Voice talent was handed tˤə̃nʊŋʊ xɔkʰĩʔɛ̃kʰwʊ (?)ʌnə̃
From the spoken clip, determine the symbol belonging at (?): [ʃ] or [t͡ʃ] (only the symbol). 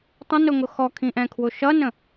ʃ